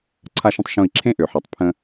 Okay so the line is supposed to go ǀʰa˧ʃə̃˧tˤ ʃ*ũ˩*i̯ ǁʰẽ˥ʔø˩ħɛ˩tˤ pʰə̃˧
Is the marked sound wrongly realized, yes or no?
yes